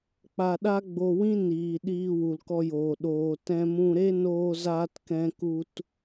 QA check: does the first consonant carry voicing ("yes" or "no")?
no